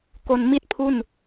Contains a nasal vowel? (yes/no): no